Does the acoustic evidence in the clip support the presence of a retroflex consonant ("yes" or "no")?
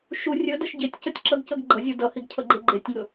no